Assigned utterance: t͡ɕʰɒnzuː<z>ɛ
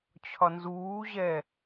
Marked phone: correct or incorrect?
incorrect